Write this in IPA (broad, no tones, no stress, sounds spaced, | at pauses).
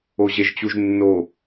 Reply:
o ʑ e ʒ t͡ɕ u ʒ nː o